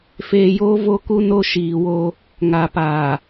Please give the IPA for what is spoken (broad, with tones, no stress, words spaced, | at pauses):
feː˨joː˦ vo˦ku˦ no˦ʃiː˨wo˦ | ŋa˨paː˨